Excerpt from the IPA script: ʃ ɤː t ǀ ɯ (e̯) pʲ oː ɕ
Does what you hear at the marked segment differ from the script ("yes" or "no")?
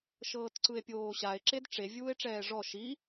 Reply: no